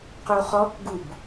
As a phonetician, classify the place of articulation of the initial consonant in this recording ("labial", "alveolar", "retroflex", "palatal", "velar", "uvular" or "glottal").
uvular